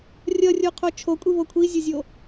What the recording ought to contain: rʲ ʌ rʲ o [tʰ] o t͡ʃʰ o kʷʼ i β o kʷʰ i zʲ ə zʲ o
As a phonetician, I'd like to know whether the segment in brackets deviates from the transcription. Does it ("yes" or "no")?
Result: yes